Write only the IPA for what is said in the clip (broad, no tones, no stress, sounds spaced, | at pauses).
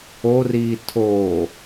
o r iː tʰ o